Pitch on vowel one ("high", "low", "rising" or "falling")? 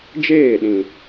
falling